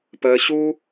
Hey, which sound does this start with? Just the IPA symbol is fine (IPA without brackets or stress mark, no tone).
p